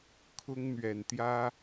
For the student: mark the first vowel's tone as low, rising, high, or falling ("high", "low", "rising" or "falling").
high